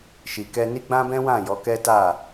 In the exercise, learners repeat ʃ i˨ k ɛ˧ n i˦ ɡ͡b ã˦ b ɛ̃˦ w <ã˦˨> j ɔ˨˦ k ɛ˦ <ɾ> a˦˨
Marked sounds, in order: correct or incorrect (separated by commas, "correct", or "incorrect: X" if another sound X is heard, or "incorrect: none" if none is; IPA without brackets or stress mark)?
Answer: correct, incorrect: t